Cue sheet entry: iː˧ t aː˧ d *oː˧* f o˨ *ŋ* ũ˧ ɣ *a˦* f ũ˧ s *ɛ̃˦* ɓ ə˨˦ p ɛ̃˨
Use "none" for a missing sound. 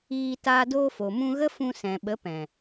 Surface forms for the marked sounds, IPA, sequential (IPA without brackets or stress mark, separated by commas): oː˧, m, ə˦, ɛ̃˨